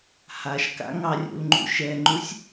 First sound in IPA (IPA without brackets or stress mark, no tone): h